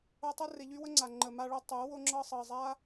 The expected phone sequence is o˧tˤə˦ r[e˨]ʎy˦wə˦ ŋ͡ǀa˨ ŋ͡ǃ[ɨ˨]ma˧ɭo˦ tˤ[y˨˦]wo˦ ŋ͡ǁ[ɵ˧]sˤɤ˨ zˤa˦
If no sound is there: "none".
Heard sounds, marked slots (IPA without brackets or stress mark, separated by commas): e˧, ə˨, y˨˦, ɤ˧